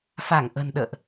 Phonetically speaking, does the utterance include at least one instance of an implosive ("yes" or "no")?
yes